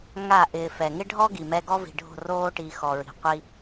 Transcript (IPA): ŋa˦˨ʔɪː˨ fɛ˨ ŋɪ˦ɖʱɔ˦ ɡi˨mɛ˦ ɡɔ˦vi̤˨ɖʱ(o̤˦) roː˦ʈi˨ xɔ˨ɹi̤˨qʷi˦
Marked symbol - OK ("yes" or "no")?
no